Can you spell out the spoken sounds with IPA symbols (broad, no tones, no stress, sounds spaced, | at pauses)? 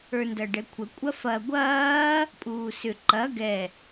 ə˞ n d ɐ ɖ ɛ kʷʰ ə kʷʼ ɐ f ɐ ɡʷ ɐː | pʼ uː s ʏ ǃ ɐ ɡ ɛ